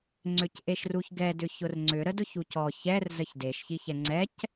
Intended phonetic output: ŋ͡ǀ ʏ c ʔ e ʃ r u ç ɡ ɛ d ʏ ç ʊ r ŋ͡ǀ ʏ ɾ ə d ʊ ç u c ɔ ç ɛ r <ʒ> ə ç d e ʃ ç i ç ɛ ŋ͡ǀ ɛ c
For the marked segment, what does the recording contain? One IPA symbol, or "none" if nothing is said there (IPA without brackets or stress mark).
z